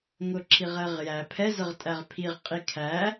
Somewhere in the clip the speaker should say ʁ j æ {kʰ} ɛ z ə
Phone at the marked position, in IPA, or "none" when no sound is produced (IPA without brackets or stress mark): pʰ